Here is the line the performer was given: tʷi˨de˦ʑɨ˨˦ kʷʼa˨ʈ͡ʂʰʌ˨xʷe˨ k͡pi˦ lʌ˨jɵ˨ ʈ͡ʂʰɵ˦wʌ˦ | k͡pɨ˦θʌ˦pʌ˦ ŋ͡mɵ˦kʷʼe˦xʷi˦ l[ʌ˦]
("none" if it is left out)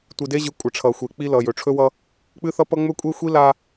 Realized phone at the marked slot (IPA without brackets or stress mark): a˦